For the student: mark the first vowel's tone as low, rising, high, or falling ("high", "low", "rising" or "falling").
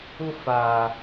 high